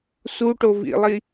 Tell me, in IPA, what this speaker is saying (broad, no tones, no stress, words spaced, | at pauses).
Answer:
suʈo vḭlˠi